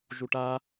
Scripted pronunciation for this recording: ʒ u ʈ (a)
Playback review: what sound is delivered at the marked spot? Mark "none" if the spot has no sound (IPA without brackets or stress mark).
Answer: a